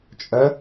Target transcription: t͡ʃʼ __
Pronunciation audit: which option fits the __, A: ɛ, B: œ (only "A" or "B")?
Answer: B